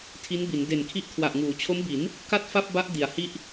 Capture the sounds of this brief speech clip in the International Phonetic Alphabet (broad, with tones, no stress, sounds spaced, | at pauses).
tʰ i˦˥ n b i˩˦ n d e˨˩ n kʰ i˦˥ ʔ kʰ w a˨˩ ʔ ŋ uː˩˦ t͡ɕʰ o˦˥ m b i˩˦ n | k a˥˩ t̚ f a˥˩ p̚ b a˦˥ ʔ d i˨˩ a̯ h i˥˩ ʔ